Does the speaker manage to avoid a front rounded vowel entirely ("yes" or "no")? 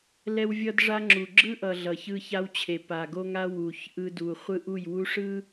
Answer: yes